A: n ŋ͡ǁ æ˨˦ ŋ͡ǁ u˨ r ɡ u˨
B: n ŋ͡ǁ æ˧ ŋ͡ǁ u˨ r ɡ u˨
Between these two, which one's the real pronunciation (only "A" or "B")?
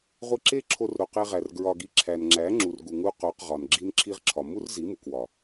A